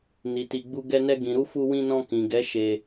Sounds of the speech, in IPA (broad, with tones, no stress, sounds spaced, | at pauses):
n i˨ t i˨ ɡ͡b u˧ ɡ ɛ˧ n ɛ˧ ɡ ĩ˨ ɾ u˧ f u˧ w ĩ˧ n ɔ̃˧ k ĩ˨ ɡ ɛ˨˦ ʃ e˧